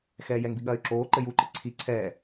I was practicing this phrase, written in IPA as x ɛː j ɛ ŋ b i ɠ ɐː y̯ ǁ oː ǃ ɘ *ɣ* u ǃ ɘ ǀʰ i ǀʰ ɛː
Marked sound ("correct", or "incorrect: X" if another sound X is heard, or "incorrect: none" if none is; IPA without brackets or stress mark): incorrect: j